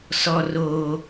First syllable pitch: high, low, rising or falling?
low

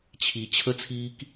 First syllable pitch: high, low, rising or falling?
low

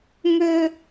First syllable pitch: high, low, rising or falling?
high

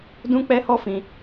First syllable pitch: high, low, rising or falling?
high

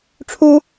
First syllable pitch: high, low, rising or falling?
high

